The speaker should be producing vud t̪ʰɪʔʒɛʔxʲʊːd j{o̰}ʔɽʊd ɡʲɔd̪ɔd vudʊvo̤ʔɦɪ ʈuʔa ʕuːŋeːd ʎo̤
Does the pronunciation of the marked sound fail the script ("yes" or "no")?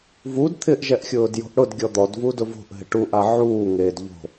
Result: yes